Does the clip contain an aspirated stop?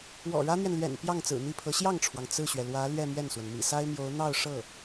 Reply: yes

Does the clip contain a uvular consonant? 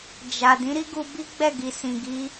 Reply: no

